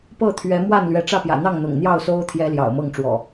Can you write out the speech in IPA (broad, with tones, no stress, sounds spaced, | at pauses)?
p ɤ˥˨ t̪ʰ ɥ ɛ˨˦ m w a˥˨ n l ɥ ɛ˨˦ ʈ͡ʂ ä˥˨ p j ä̰˨˩ n̪ ɑ˥˨ ŋ n̪ ʊ̰˨˩ ŋ n̪ j ɑ˥˨ ʊ̯ s o˦ ʊ̯ t̪ʰ j ɛ˦ l j ɑ̰˨˩ ʊ̯ m ɤ˥˨ ŋ ʈ͡ʂ w ɔ̰˨˩